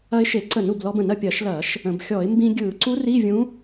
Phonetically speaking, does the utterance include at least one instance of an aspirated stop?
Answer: no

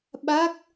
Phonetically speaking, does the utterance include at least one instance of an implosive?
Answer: yes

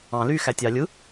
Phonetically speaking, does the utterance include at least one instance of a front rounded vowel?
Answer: yes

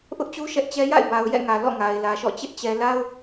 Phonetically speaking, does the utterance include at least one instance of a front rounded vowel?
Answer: no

